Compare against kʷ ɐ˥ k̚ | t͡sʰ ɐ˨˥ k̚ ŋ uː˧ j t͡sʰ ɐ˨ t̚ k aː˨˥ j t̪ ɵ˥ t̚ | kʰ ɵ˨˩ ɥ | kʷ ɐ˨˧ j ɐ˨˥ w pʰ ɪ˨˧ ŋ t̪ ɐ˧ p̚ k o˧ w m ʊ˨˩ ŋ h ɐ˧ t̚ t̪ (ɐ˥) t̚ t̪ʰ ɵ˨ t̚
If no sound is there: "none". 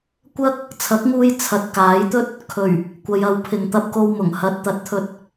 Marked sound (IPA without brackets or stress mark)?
ɐ˨˥